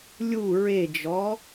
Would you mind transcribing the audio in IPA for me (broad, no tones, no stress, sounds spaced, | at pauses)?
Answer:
lʲ u ɹ e d͡ʒ ɔ